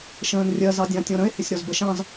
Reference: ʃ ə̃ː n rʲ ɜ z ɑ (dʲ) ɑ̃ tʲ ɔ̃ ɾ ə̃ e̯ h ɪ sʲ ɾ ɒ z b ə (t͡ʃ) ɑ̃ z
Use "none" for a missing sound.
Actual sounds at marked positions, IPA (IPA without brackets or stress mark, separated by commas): dʲ, ʃ